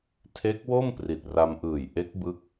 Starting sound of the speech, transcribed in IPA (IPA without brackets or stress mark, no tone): tʰ